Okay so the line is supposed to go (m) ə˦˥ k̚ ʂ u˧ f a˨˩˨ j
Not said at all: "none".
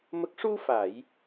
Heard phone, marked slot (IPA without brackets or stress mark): m